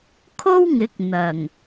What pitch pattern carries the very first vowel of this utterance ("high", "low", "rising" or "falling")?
high